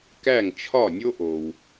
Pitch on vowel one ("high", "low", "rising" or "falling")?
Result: falling